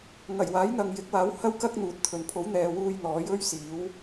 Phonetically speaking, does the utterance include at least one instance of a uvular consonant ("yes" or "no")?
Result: no